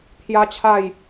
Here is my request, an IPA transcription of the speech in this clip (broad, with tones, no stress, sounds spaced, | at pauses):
t̪ʰ j a˦ t͡ɕʰ a˥˧ j